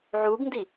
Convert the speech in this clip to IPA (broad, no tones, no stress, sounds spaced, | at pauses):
ʕ u ɡ n d i